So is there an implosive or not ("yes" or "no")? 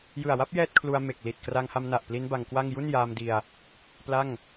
no